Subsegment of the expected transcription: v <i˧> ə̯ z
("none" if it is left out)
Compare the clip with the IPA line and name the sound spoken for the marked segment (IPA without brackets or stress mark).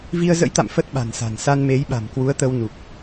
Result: i˧